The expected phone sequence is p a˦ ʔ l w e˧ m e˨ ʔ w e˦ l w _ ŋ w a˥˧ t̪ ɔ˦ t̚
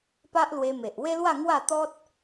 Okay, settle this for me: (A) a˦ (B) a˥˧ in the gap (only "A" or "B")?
B